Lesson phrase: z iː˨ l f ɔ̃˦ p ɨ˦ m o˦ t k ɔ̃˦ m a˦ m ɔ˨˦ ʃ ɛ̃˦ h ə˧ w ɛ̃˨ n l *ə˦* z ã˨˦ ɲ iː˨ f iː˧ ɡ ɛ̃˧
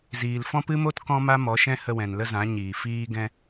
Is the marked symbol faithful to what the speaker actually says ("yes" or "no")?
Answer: yes